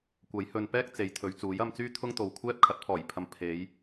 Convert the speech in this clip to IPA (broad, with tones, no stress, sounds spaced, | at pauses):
kʷ ɐ˨˥ j h ɵ˨ n p ɛː˥ k̚ t͡s e˨˥ j t̪ʰ ɵ˨˧ ɥ t͡s uː˨˥ j ɐ˧ m t͡s yː˥ t̪ʰ ʊ˥ ŋ t̪ o˨ w kʷʰ ɛː˥ p̚ kʰ ɐ˨˥ t̚ pʰ ɔː˨˩ j pʰ ɐ˨˧ m pʰ e˨˧ j